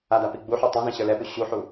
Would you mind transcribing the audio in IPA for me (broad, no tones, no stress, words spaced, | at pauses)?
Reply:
ada piɡ͡buħu tˤĩzĩ ɕə˞lɛpu ɕuħu